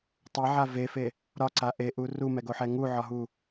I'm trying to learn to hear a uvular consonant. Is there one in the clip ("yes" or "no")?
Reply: no